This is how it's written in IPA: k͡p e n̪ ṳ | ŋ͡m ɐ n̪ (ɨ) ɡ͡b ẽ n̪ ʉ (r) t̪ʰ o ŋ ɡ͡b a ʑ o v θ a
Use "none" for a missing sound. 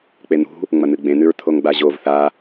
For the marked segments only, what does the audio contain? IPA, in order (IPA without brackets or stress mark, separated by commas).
ɨ, ɹ